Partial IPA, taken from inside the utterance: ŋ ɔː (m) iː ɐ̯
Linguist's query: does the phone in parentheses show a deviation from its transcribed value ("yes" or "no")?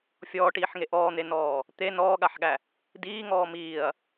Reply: no